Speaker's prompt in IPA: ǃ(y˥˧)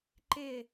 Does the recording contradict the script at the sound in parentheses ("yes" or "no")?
yes